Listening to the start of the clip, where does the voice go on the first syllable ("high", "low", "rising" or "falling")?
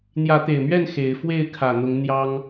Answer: rising